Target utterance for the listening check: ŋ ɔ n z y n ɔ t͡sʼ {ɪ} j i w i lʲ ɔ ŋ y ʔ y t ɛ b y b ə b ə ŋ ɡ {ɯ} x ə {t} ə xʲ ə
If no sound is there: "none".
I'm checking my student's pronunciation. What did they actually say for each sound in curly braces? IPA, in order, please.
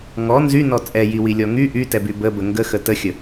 ɛ, ə, t

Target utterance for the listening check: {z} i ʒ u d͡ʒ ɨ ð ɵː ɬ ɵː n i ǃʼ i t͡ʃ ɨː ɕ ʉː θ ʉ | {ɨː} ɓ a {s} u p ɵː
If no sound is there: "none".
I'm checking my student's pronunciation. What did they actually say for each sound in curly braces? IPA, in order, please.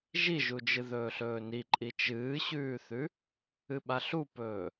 ʒ, ɨ, ɬ

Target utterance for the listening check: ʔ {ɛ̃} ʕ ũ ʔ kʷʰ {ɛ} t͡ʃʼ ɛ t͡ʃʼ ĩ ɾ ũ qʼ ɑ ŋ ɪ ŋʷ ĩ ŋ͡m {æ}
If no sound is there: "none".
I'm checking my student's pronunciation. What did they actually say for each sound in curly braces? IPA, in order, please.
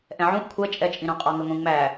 ɛ̃, ɛ, æ

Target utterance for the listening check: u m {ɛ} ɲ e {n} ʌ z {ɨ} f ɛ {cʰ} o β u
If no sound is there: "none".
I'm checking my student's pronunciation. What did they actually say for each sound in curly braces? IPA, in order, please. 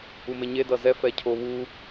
e, d, ɛ, cʰ

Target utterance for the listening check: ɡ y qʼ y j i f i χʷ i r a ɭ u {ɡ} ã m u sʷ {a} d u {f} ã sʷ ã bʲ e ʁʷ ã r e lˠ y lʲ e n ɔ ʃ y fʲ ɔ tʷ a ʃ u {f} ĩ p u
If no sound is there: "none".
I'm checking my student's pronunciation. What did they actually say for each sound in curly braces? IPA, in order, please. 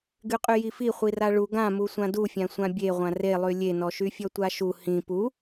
ɡ, ã, fʲ, h

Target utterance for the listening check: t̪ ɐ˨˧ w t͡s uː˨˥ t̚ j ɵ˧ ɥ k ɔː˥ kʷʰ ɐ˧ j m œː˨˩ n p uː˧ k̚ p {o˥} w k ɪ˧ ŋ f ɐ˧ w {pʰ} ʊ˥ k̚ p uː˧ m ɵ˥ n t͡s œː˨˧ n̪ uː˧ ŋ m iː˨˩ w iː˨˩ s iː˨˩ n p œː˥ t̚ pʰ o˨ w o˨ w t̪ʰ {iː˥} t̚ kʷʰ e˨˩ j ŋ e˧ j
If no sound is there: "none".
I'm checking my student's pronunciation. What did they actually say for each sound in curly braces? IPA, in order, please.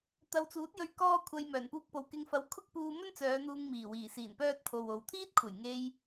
o˨, kʰ, iː˥

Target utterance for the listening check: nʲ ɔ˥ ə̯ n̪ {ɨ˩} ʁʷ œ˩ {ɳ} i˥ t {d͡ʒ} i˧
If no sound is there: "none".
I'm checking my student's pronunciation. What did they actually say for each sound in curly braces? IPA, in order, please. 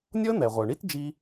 ɛ˩, ɳ, d͡ʒ

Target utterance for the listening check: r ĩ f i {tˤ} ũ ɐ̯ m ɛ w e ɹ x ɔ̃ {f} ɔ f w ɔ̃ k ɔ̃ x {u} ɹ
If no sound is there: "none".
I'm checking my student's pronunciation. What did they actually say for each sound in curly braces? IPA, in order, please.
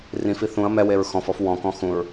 θ, f, ũ

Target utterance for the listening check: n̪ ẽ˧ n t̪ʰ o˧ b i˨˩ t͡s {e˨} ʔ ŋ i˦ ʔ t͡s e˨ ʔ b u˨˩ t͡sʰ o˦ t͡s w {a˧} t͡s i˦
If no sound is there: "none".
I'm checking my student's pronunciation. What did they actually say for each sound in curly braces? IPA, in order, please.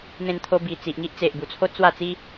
i˨, a˥˧

